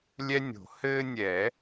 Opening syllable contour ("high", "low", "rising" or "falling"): high